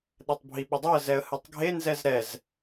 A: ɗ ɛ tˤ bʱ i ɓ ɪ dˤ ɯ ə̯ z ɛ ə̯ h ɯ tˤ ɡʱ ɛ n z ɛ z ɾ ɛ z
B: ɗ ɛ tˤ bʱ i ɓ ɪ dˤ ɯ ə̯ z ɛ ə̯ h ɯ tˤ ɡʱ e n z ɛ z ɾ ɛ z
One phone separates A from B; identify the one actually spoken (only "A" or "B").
B